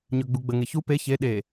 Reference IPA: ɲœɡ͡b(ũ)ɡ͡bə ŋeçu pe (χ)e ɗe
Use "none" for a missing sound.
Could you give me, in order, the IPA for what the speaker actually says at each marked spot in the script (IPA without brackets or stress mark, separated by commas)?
u, ç